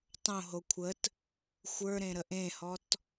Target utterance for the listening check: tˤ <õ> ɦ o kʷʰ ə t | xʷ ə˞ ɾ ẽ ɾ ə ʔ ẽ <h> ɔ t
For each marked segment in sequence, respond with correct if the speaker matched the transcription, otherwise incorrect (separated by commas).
correct, correct